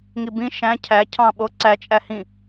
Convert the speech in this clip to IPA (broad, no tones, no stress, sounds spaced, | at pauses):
ŋ i b ĩ ʃ æ̃ cʰ æ cʰ ɑ̃ ɓ o ǀ æ t͡ʃʼ æ h ĩ